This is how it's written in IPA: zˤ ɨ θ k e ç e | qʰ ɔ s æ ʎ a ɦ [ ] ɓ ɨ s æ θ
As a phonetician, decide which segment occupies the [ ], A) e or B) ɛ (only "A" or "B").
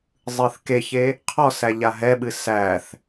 B